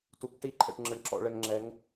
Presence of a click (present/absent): present